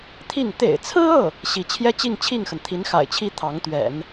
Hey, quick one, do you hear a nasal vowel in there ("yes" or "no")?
no